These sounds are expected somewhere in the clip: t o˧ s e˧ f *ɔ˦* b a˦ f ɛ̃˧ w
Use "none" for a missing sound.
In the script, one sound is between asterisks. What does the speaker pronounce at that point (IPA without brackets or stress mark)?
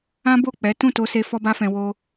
ɔ˦